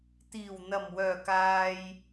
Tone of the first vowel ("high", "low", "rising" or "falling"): low